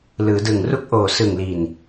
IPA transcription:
l ɯː˩˦ d ɯ˨˩ ŋ r u˥˩ k̚ ʔ oː˨˩ s ɯ˨˩ ŋ l i˨˩ n

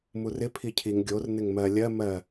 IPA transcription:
m u r ɪ pʰ i cʰ i ŋ ɡʲ o r n ɪ ŋ m ɜ lʲ ɜ m ɜ

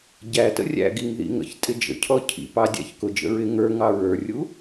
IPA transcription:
ɟ æ t ə̰ rʲ æ̰ ɡ i ŋ ð ḭ ŋ ə̰ ç tʼ ɪ d͡ʒ ə̰ cʰ ɔ cʰ ḭ p ɑ dʲ æ̰ ç k ʊ d͡ʒ ə̰ ɹ ɪ ŋ ə˞ ŋ ɑ ɹ ə˞ rʲ u

